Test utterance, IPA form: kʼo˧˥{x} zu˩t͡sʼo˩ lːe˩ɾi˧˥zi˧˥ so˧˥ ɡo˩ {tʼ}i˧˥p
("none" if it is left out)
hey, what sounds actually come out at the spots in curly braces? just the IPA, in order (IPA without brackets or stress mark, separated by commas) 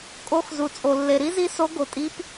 x, tʼ